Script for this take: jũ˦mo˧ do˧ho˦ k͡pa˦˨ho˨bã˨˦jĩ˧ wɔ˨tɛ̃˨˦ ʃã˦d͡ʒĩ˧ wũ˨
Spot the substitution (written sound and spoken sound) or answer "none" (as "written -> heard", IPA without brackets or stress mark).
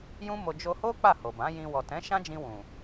d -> d͡ʒ